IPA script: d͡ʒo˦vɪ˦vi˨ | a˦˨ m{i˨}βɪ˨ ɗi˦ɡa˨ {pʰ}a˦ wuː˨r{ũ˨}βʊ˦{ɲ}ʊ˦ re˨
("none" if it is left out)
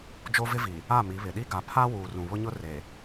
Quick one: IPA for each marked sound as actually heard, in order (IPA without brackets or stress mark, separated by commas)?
i˨˦, pʰ, ũ˨, ɲ